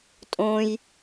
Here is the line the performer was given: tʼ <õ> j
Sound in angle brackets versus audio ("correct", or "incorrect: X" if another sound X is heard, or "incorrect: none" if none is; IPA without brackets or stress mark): correct